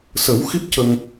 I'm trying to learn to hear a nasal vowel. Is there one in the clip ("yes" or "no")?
no